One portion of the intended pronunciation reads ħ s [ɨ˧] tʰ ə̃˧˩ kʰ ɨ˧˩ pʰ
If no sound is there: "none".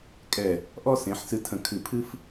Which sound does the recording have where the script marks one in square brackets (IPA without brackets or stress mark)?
ɨ˧